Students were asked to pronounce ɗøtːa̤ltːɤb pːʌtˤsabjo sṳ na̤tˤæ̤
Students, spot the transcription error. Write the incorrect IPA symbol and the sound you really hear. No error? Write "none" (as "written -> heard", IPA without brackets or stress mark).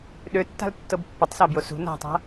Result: æ̤ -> a̤